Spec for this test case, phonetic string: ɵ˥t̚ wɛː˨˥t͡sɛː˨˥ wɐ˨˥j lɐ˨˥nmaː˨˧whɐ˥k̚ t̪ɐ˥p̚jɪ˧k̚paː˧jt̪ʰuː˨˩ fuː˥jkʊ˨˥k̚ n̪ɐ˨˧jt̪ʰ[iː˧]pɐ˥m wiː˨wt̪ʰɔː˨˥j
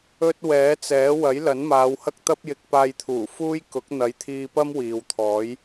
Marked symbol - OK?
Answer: yes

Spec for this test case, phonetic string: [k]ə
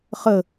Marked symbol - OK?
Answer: no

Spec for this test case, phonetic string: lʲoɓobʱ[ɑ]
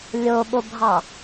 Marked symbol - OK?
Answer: yes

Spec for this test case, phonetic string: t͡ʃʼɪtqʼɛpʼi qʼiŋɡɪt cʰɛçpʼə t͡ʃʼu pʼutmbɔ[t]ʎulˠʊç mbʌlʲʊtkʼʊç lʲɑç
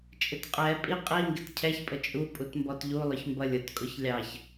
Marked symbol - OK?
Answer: yes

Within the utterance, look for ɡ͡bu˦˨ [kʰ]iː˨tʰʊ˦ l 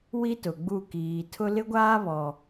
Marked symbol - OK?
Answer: no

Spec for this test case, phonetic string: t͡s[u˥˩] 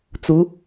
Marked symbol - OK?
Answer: no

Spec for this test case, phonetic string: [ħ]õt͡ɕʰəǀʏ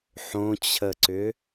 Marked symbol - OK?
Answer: yes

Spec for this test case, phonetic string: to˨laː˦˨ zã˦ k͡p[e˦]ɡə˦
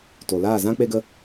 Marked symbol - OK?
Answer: yes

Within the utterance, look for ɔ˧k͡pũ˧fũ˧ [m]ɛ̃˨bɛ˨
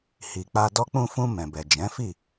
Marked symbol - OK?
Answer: yes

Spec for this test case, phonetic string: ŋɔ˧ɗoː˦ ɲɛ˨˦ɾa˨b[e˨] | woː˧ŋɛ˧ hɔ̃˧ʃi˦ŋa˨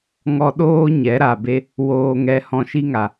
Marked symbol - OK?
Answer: no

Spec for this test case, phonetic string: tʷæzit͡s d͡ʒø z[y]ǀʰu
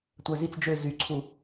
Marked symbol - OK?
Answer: yes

